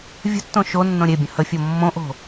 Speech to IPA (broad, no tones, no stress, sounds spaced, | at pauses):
vʲ ə̤ tː õ ʃ o nː õ ɾʲ e bʲ ə̃ h ə fʲ o mː õ ʔ o̤